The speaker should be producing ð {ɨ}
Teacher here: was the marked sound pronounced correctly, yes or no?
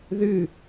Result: yes